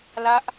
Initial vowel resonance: oral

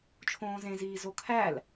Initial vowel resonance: nasal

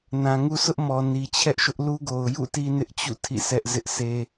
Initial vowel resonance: nasal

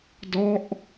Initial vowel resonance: oral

